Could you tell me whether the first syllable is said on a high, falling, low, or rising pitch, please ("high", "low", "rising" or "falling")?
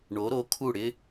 rising